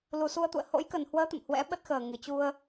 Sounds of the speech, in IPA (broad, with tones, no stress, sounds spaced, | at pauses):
l u˨˩ s u˧ ə̯ t̪ ṵ˧˨ ə̯ h o̰˧˥ j k ə˨˩ n h w əː˨˦ t̪ ə̰˧˨ m h w ɛ̰˧˥ ɓ ə˦˥ t̚ x əː˨˩ ŋ ɨ˨˩ t͡ɕ u˧ ə̯